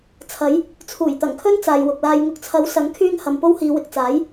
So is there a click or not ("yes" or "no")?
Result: no